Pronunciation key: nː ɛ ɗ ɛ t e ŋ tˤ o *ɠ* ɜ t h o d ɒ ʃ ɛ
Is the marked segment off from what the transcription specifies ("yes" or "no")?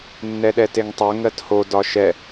yes